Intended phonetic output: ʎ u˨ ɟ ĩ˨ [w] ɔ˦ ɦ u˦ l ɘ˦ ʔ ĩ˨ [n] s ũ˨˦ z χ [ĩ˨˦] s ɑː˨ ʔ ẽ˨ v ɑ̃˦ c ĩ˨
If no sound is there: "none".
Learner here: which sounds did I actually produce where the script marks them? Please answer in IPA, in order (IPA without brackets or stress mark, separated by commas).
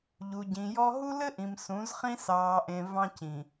j, m, ĩ˦